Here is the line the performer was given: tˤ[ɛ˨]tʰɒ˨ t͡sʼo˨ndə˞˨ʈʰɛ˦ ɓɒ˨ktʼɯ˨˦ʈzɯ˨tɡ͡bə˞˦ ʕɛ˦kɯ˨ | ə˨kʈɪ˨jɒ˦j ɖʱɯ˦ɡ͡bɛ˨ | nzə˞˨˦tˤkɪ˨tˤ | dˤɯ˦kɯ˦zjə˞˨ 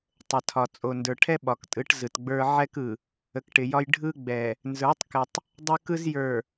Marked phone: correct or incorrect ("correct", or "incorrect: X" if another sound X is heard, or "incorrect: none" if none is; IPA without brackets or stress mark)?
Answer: incorrect: ə˨